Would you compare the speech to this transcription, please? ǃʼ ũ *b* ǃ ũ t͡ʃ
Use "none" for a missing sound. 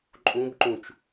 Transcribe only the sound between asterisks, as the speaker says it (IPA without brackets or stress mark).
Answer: b